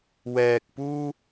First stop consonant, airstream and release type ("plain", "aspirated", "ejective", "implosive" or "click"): plain